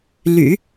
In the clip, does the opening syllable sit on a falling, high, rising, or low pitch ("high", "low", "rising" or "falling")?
low